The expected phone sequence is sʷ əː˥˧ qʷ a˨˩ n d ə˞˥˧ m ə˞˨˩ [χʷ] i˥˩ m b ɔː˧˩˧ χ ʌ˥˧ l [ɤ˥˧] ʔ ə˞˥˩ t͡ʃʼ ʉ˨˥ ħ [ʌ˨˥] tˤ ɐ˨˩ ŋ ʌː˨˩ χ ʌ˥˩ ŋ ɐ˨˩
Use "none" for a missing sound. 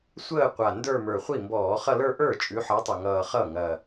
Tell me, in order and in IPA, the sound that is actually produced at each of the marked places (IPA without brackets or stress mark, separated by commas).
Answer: χʷ, ə˞˥˧, ʌ˨˥